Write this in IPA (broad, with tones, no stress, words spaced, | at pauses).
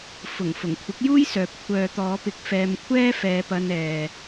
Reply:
fʊ˨˩ŋ fʊ˨˩ŋkʷʰɪ˨˥k̚juː˥jsœː˨p̚ kʷʰœː˨t̪ɔː˨˧pɪ˨˥k̚ fɛː˧mkʷʰɛː˥fɛː˧pɐ˧n ɛː˨